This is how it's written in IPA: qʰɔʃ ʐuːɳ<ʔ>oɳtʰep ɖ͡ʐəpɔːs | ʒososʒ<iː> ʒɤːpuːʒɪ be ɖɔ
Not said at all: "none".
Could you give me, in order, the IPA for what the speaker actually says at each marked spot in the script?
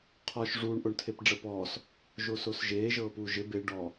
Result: ʔ, eː

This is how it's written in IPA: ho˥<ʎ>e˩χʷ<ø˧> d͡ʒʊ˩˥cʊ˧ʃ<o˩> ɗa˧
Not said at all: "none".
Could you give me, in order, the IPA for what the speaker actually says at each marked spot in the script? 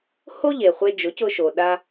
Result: ʎ, e˧, o˩

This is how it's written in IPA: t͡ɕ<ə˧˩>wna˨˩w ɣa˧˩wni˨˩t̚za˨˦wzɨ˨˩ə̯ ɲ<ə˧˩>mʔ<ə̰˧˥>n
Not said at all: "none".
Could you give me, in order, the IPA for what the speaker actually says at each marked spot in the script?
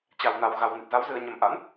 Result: a˧˩, ə˧˩, a̰˧˥

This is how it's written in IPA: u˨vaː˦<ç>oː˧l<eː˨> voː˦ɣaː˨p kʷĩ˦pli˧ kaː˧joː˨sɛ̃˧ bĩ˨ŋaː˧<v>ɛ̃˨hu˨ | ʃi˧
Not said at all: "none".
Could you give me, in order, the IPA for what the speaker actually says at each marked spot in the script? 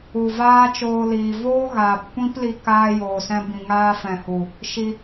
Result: t͡ʃ, iː˨, f

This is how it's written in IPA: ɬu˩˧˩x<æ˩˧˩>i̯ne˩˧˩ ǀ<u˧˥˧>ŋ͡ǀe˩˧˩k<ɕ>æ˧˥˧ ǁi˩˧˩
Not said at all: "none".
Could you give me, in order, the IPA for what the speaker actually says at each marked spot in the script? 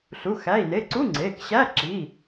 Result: æ˩˧˩, u˧˥˧, ɕ

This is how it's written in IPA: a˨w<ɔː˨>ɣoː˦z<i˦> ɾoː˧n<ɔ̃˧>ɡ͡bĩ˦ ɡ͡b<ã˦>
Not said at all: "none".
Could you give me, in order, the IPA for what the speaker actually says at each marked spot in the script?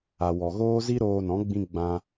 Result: ɔ˨, i˦, ɔ̃˨˦, ã˦

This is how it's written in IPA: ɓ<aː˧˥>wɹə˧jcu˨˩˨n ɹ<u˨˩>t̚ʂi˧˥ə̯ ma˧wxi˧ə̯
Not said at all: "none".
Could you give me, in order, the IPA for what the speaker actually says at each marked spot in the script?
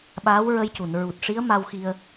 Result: aː˧˥, u˨˩

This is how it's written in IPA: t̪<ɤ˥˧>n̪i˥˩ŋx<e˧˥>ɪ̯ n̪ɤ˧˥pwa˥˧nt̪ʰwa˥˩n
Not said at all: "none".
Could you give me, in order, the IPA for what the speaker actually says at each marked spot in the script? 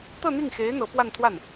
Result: ɤ˥˧, e˧˥

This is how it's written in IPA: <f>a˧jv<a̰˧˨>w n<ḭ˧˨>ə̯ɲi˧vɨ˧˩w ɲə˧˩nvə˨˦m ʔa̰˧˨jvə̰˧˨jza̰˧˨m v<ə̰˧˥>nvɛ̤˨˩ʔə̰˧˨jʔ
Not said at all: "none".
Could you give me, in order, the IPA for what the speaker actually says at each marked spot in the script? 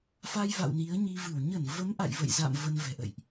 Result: f, a̰˧˨, i˨˦, ə˧

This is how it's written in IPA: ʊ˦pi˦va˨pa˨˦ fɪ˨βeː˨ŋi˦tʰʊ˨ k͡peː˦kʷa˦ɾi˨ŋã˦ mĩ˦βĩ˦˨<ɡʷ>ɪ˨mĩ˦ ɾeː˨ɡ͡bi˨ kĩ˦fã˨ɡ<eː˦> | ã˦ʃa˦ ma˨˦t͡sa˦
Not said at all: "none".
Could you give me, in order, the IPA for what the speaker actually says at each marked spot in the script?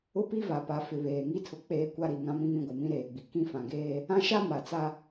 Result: ɡʷ, eː˦

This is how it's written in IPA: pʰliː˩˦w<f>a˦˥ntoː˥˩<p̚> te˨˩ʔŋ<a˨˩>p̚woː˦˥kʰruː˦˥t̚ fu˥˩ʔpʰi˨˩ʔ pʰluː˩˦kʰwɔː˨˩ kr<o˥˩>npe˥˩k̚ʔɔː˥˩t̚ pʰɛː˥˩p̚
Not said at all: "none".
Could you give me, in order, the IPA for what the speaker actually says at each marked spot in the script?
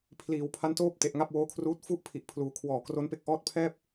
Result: pʰ, p̚, a˥˩, o˦˥

